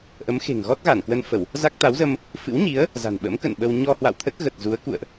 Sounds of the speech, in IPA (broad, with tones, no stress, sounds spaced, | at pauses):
ʔ ə˨˦ m x e̤˨˩ ŋ ɣ ɔ˦˥ t̚ ɣ a˧˩ n k w ə˧ n f ə˧˩˨ w | z a˦˥ k̚ t̪ a˨˦ w z ə˧ m | f ɨ̰˧˥ w ɲ i˨˦ ə̯ | z a̤˨˩ n ɓ ə̰˧˥ m k ə̰˧˨ n ɓ ə˧ w ɲ ɔ˧ h w a̰˧˨ w t̪ʰ ə˦˥ t̚ ɣ ə˨˩ t̚ z u˨˦ ə̯ k ṵ˧˨ ə̯ ʔ